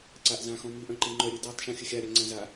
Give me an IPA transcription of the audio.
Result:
ǀ a ʔ z ã x ɔ̃ m i ʔ œ̃ ǃ i ŋ͡ǃ œ ɾʲ ɨ d ɔ tˤ ʃ õ xʲ ɵ xʲ a ɾʲ a ŋ͡ǀ ã z a

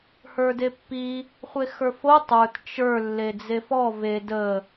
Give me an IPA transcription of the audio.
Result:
h ə˞ d e pː i | χʷ e x ə˞ f o tˤ ə˞ t t͡ʃ ə˞ lː e d͡z e f ɔ v e d ə

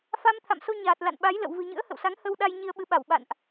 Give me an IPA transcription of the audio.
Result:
f a˧ m t̪ʰ a̰˧˨ m s o˧ ɲ aː˨˩ t̚ l a̰˧˨ n ɓ a˨˦ j l ə̰˧˨ w v ɨ̤˨˩ ɲ ɨ̰˧˥ ə̯ h ə̰˧˨ w s a˨˦ ŋ h ə˧ w ɗ a˧ j ɲ i˧ ə̯ ɓ ɨ˨˦ ɓ a˧˩ w ɓ a̰˧˨ n ʔ

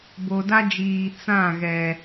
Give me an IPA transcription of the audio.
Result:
b o˨ d a˦ d͡ʒ iː˨ t͡s ã˦˨ ɣ ɛ˨

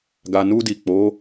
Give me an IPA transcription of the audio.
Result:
ɡ a˨ n u˧ d i˨ k͡p o˨˦

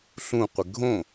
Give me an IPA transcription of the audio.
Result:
ɬ ũ qʷ e ɡʱ õ

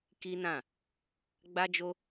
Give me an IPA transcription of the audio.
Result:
k i˦ n ã˦˨ | ɡ͡b a˦ d͡ʒ o˦

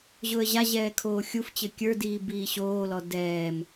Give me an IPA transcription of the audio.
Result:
ʑ ʊ ə̯ ʑ a ʑ ɛː kʰ oː xʲ u f t͡ɕ ɘ kʲ ə˞ d iː b iː ɕ oː l ɔ d ɛː m

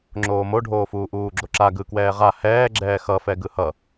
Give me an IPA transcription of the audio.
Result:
ŋ͡ǁ oː m o ɖʱ oː f uː ʔ uː ɡ͡ǁ o ǁ a ɡ ɯ k w ɛː ʁ a h ɛː ɡ͡ǁ ɛː x ʌ f ɛ ɡ ɯ h ʌ

